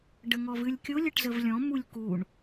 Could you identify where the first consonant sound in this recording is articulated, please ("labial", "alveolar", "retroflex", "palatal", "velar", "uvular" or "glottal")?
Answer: retroflex